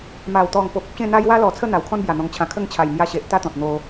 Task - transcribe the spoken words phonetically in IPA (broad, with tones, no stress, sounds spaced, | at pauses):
m a˨˩ w t̪ ɔ˨˩ ŋ p o˨ p̚ ə˦ p̚ ɕ ẽ˥˧ n̪ a˦ j w a˦ l ɔ˨˩ t͡sʰ ə˥˧ n̪ a˨˩ w kʰ ɔ̃˦ n b j a˨˩ n̪ ɔ̃˨˩ ŋ t͡ɕʰ ã˨˩ kʰ ə˥˧ ŋ t͡ɕʰ a˨˩ j m j a˧ ɕ e˨ ʔ t̪ a˦ t̪ ɔ̃˨ t̚ n̪ o˧